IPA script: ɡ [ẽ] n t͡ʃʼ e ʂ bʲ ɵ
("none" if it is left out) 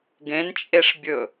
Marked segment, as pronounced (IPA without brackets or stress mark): ẽ